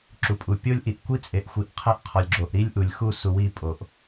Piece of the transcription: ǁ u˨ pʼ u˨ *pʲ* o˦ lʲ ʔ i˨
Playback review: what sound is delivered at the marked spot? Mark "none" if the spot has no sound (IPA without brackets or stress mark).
pʲ